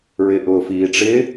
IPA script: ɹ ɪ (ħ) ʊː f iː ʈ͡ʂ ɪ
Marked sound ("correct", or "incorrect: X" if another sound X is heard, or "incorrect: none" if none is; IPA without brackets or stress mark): incorrect: ʔ